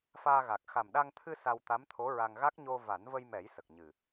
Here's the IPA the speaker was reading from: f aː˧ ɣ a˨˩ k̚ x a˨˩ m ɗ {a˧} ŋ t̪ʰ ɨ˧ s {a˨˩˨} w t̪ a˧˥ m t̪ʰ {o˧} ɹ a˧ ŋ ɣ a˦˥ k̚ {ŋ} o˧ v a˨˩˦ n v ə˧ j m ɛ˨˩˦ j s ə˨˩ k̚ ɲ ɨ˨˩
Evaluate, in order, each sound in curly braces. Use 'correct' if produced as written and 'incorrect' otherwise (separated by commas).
correct, incorrect, incorrect, incorrect